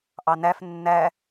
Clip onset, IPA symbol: ʔ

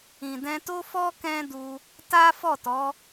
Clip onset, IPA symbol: ĩ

